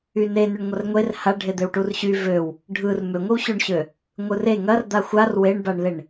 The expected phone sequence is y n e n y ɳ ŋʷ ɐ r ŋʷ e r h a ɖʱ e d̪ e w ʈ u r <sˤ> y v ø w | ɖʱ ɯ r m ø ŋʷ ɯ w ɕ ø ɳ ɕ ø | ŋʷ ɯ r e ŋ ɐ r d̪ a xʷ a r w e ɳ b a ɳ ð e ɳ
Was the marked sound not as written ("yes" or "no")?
yes